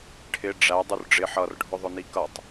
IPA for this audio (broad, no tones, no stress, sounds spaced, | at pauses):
ʈʰ ɪ ɖ͡ʐ æ dˤ u r ɖ͡ʐ ɪ ħ ʌ r ɖʱ ʊ ðˤ ʊ n i k ʌ tˤ